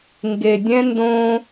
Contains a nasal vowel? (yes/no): yes